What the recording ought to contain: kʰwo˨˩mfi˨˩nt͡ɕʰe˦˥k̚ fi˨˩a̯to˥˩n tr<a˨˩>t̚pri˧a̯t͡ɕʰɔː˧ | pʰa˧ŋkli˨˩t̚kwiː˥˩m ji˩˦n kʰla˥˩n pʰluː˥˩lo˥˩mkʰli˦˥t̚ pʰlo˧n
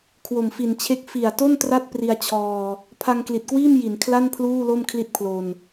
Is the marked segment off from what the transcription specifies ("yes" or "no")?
yes